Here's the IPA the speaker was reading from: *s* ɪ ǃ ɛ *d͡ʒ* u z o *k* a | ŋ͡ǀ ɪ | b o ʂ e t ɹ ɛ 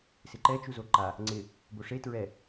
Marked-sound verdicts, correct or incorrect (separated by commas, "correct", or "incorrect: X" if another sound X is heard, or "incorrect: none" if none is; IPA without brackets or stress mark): correct, incorrect: t͡ʃ, incorrect: ǃ